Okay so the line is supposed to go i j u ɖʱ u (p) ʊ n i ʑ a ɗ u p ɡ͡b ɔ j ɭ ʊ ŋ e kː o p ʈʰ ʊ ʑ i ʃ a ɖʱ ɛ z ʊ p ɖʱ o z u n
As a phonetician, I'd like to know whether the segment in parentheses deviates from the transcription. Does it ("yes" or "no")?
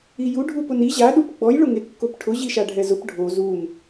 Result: no